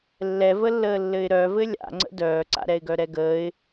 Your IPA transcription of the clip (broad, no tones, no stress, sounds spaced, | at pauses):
lː ɛ v ə lː əː lː ɘ ɪ̯ ɾ œ v ɘ lʲ a̰ ŋ͡ǀ ə̰ d œː ǀ a̰ ɾ ɛ ɪ̯ ɡ œ ɾ ɛ ɡ əː ɪ̯